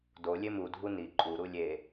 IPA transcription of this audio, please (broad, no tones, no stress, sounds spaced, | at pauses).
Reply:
d o lʲ e m u dʱ u n i ǃʼ u ɾ u lʲ e